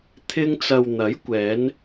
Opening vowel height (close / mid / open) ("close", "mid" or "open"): close